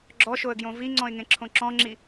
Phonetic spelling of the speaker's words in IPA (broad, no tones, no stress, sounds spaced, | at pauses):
ɡ͡ǁ ɔ ʃ o ə̯ ɡ j õ v i ŋ͡ǀ ɔ̃ ɪ̯ ŋ ẽ ǁʰ õ ǁ ɔ̃ ŋ͡ǁ i